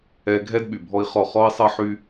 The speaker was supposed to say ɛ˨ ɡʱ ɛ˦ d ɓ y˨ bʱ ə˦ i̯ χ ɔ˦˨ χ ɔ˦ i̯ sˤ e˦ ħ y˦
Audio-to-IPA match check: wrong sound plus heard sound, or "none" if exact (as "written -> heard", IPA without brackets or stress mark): ə˦ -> ɔ˦